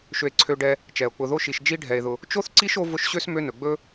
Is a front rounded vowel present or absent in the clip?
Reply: present